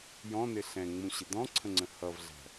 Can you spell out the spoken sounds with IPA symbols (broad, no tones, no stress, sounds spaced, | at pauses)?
j ɔ̃ n ɪ ɬ ɛ̃ ŋ͡m ũ ɕ ɪ d ɔ̃ ǀʰ ə̃ ŋ͡ǀ ə̃ h ʌ v ɮ æ̤